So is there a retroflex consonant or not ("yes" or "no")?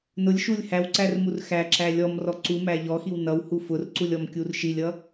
no